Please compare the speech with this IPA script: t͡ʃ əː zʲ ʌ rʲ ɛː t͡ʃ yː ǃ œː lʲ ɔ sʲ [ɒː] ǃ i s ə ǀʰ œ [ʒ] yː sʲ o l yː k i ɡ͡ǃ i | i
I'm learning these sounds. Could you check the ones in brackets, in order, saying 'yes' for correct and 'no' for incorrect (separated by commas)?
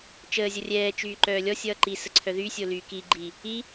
no, no